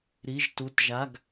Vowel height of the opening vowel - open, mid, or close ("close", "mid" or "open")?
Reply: close